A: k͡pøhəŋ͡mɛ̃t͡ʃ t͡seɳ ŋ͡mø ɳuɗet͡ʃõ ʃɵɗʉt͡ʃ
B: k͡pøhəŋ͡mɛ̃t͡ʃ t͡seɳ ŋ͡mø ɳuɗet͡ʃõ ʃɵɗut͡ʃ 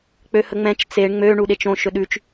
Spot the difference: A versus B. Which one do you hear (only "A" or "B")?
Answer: A